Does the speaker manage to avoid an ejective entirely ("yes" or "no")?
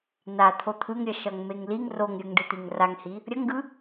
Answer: yes